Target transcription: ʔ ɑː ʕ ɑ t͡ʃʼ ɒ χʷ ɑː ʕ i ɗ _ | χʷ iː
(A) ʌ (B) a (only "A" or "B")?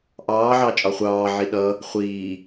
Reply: A